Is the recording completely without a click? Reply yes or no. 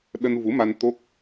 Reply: yes